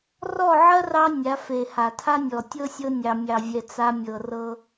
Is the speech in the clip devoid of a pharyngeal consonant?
no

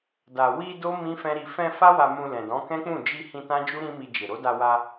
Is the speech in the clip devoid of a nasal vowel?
no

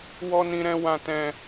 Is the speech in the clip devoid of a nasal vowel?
no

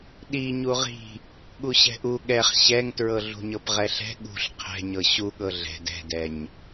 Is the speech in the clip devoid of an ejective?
yes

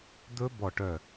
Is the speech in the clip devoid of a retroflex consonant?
no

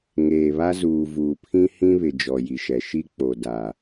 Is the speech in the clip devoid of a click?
yes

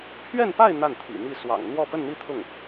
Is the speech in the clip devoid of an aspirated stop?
no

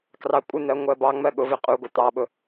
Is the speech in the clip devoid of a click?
yes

